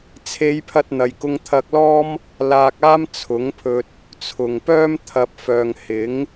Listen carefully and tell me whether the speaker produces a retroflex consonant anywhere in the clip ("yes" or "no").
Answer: no